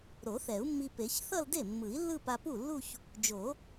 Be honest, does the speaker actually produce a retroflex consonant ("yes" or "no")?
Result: no